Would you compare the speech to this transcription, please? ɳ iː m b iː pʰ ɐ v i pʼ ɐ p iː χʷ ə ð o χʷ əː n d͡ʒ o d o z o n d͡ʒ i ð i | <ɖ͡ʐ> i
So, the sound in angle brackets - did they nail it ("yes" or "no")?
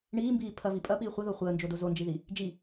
no